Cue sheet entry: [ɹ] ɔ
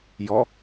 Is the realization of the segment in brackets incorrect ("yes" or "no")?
yes